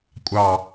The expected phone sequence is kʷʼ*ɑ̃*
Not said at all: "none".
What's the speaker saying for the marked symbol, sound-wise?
ɑ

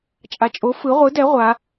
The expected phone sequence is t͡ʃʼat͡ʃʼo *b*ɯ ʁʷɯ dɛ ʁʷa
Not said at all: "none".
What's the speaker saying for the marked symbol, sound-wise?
f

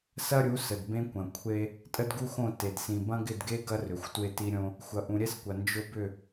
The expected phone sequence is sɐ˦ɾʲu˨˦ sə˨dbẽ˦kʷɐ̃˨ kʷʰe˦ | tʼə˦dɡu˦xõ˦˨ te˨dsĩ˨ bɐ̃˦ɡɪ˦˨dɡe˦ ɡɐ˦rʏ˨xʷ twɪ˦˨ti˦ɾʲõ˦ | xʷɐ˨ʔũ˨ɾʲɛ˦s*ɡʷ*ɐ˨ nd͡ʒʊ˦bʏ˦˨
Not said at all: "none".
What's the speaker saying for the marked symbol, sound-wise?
kʷ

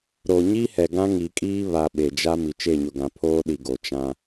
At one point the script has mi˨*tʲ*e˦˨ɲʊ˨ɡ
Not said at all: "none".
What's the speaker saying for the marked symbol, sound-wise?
t͡ʃ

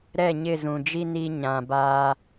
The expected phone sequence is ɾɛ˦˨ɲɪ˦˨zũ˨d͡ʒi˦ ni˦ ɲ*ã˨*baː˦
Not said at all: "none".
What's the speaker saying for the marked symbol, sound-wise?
ã˨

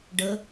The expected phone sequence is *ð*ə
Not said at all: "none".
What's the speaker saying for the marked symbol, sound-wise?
ɖ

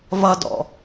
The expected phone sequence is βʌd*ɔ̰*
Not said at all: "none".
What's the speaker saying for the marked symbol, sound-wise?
ɔ̰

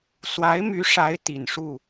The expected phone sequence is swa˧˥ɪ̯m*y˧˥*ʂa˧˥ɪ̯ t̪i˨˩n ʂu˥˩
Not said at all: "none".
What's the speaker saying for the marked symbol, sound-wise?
y˧˥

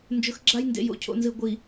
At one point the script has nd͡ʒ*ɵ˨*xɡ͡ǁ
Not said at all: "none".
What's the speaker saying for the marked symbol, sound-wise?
ɵ˨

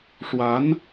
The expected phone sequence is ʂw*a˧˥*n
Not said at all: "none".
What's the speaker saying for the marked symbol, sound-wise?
a˧˥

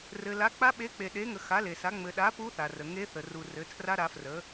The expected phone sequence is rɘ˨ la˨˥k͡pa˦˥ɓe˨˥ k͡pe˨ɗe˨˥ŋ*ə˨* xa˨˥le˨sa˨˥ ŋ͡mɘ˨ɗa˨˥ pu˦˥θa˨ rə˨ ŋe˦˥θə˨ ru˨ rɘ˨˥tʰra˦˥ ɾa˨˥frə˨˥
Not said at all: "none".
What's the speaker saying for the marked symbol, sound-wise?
ə˨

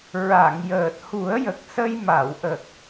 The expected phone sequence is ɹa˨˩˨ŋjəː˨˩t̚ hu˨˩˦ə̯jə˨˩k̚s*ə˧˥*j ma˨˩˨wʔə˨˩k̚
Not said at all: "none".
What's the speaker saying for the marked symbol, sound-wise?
ə˧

